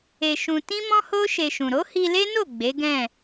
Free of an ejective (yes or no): yes